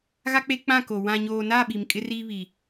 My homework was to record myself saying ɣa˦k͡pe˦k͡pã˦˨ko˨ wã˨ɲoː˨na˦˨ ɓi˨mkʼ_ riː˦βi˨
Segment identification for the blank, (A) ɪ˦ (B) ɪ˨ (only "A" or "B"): A